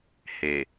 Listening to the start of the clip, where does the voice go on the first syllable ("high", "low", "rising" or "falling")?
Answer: low